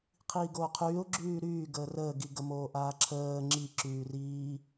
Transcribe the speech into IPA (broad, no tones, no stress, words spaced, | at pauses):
qʰiːɡoːqʰyːʊ̯ ɡ͡ǁyːɾyːɡəː rəːɡiɡəmoː ʔaːǁʰəː ŋ͡ǁiǁyː riː